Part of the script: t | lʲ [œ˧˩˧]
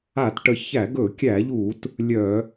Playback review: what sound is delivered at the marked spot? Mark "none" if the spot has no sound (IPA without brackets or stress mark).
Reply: œ˧˩˧